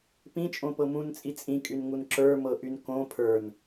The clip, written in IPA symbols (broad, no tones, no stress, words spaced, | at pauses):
pĩt͡ʃʼõpɤ mũnt͡sʼi t͡sʼĩkʼynŋun ǁə˞mɤʔyn kõ pʰə˞n